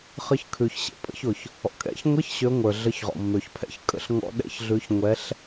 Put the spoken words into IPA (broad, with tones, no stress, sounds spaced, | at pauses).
χ ə˨˦ ç kʰ ʉ˩ ç ɕ ḛ˩ pʼ ə̰˧˥˧ ç ʊ˩ ç | ɔ̰˩ kʼ ɛ̰˧˥˧ ç ŋʷ ɛ˧˥˧ ç ɕ ø˨˦ ŋʷ ə˞˩ ɮ ə˨˦ ç ʁ ɔ̰˩ mː ø˩ ç pʰ ɛ̰˨˦ ç kʼ ə̰˧˥˧ ɬ ŋ ɔ̰˧˥˧ ɗ ɛ̰˧˥˧ ç ɮ ʉ˨˦ ç ŋʷ ɛ˨˦ ɬ